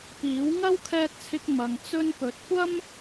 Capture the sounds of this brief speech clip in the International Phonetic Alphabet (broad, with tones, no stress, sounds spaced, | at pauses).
p iː˨˥ w ŋ ɐ˥ w kʰ ɛː˧ t̚ t͡sʰ ɪ˧ k̚ m ɐ˧ ŋ t͡s ɵ˧ n p ɵ˨˥ t̚ kʷ ɐ˥ m